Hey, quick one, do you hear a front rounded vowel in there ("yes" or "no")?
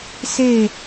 no